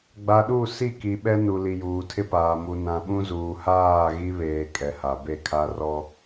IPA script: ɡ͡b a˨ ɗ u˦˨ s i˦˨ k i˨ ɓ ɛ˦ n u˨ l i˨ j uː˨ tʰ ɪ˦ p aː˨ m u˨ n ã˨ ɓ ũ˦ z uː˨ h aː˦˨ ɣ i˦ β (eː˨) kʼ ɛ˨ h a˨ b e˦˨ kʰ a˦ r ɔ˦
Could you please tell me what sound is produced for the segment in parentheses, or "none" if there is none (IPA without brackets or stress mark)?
eː˨